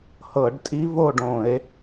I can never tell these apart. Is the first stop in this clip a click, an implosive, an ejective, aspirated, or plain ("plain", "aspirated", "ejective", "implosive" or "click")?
plain